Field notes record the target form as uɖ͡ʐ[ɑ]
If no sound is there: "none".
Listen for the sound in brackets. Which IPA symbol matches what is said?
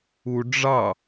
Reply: ɑ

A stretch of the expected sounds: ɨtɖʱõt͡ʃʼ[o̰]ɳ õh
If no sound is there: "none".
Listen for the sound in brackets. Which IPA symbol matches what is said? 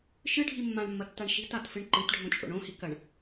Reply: o̰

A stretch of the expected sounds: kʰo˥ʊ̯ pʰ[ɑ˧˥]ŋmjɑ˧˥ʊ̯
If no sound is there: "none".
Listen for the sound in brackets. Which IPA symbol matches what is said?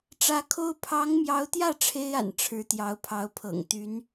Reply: ɑ˧˥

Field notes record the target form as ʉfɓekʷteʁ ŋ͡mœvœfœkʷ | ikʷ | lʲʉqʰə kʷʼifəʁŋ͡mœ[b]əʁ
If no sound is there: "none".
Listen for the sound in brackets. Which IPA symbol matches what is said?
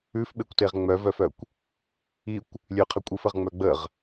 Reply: ɡ͡b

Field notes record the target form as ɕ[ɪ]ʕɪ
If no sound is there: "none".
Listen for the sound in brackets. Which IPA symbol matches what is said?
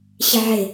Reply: ɪ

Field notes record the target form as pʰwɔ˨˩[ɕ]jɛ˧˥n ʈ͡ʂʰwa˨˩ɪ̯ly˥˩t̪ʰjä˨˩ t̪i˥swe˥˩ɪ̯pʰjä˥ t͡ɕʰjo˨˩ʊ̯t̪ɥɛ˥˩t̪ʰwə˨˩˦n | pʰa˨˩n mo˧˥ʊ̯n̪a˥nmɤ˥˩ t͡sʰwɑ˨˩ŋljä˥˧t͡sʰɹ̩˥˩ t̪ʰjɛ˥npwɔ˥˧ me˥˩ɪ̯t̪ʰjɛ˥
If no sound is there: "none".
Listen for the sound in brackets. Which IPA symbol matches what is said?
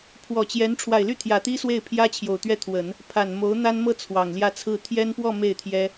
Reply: t͡ɕ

